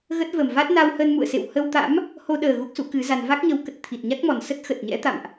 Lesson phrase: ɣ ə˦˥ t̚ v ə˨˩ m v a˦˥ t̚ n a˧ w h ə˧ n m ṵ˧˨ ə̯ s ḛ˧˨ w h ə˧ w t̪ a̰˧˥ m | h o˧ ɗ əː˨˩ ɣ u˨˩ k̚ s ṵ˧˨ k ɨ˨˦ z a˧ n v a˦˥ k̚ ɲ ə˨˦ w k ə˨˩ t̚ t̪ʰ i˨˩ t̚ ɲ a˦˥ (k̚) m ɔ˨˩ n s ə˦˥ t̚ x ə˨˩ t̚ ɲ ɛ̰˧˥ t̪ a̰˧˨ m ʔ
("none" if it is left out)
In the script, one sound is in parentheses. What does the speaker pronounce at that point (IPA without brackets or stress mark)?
k̚